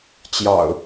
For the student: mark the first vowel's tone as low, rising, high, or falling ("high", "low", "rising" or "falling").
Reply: low